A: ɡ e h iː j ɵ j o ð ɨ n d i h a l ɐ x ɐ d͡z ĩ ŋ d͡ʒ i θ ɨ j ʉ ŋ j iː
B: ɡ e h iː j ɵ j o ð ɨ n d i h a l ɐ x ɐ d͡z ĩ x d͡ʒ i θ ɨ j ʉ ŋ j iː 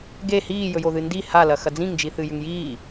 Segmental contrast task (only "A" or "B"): A